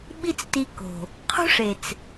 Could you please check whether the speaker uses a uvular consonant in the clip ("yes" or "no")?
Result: yes